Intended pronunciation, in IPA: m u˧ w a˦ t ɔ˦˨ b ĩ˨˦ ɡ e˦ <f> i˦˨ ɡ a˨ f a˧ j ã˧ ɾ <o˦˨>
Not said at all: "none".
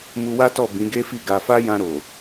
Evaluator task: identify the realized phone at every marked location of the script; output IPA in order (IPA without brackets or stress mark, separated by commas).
f, o˨